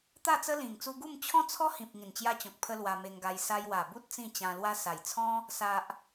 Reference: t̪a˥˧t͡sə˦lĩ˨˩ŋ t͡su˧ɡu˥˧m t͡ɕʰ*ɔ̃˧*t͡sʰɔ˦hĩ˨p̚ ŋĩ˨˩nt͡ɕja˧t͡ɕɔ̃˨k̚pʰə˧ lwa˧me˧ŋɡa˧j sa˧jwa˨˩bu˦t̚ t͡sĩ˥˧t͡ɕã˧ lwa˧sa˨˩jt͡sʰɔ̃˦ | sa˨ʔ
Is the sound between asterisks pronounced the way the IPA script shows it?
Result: no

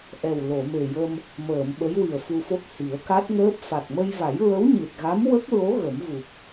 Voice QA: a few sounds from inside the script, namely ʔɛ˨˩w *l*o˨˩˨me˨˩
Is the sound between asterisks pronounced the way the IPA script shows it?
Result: yes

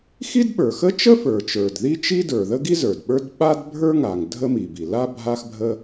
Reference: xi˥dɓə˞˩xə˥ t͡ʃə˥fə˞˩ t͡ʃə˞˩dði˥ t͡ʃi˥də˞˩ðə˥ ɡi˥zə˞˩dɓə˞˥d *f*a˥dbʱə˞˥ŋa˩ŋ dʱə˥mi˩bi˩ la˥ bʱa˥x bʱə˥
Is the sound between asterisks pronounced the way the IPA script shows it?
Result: no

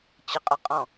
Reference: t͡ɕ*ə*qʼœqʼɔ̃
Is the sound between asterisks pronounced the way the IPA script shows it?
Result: yes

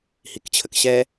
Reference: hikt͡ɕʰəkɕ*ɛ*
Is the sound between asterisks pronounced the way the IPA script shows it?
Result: yes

